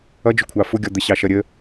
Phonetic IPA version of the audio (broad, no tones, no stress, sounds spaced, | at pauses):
ʌ d͡ʒ ʊ kʷʰ ɑ f ʊ ɡʲ ɔ d̪ ə ɕ ɑ ʃ ʌ ɾʲ ə